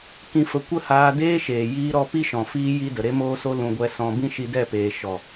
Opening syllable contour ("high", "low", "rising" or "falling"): low